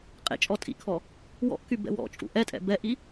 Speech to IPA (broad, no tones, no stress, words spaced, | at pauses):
qʼḛ t͡ʃʼɔtʼḭkʰɔ | wɔ̰ʔky bɛ̰wɔ̰t͡ʃʼṵ ʔɛtʼɛ̰ bɛʔi